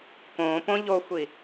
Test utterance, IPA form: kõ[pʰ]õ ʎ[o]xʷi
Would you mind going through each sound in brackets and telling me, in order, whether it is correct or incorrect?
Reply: incorrect, correct

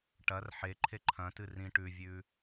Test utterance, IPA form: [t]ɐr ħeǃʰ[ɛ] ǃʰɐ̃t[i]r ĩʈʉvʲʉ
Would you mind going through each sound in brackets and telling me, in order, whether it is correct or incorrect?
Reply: incorrect, incorrect, incorrect

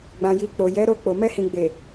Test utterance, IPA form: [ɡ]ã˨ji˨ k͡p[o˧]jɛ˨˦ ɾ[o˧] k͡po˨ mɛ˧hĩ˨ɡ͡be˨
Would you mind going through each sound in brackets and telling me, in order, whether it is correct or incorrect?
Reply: incorrect, incorrect, correct

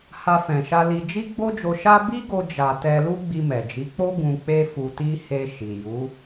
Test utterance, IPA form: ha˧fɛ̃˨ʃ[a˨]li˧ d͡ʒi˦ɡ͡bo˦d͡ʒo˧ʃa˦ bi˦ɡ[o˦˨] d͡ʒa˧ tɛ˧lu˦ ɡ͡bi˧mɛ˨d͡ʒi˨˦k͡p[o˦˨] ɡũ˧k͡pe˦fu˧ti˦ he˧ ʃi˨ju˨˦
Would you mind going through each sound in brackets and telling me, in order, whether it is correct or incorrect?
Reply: incorrect, incorrect, incorrect

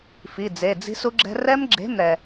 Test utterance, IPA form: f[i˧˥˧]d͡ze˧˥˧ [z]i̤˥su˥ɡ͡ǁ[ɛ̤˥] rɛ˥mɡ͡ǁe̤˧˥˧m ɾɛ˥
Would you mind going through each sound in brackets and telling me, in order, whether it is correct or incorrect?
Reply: correct, incorrect, correct

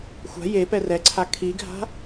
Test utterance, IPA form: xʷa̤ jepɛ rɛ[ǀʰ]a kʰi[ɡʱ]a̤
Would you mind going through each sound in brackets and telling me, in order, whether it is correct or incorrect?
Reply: correct, correct

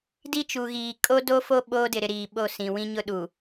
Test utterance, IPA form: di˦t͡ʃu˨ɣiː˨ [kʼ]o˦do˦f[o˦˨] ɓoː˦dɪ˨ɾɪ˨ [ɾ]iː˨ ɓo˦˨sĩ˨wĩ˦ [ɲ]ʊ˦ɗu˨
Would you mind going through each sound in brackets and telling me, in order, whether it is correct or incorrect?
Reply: correct, incorrect, correct, correct

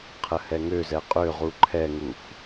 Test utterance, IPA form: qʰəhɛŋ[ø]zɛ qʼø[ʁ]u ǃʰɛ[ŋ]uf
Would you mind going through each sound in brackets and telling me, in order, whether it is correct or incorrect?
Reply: correct, correct, correct

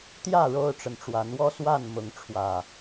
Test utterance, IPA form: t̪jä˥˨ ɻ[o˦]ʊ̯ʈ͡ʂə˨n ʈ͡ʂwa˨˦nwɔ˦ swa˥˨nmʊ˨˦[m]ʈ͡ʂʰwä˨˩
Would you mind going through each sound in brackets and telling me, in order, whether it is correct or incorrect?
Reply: correct, incorrect

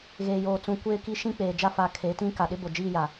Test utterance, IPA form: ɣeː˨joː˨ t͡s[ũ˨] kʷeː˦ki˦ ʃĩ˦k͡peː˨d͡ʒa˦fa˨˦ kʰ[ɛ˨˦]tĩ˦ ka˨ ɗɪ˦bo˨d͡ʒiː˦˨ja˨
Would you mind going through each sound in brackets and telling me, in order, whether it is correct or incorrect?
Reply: correct, incorrect

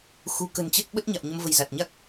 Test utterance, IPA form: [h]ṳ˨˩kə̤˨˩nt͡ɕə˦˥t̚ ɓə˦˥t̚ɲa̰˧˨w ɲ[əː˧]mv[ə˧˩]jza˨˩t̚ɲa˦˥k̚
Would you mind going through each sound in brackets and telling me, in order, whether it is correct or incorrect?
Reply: incorrect, incorrect, incorrect

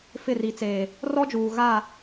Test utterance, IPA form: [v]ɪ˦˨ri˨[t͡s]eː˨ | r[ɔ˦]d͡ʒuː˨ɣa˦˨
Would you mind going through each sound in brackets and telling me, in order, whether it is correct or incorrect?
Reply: incorrect, correct, correct

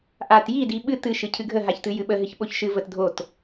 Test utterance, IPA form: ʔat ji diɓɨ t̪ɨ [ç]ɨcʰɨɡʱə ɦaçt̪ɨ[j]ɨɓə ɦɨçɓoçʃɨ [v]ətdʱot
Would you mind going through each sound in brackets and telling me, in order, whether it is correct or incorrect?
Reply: incorrect, correct, correct

